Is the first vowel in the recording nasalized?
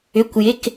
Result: no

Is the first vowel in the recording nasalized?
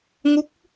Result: no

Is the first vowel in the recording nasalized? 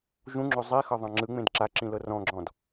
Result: yes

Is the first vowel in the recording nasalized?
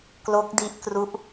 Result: no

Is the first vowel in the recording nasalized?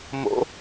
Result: no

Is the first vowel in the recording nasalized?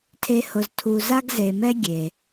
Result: no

